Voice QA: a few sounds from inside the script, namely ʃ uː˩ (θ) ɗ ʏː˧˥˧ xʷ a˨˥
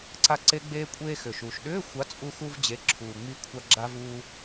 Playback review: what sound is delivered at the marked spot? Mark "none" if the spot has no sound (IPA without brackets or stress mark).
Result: ʃ